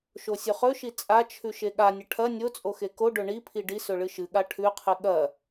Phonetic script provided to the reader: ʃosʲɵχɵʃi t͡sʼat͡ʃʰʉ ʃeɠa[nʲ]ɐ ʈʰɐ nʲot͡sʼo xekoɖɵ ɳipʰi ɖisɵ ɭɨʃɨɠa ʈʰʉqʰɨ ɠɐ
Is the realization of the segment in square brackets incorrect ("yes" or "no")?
no